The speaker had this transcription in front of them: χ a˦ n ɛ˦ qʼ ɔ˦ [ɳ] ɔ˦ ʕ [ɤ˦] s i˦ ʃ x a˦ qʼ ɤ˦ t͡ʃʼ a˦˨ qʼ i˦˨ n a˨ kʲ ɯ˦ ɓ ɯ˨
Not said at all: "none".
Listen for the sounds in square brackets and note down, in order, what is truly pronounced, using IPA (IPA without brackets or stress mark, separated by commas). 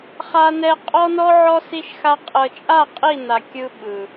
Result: n, ɔ˦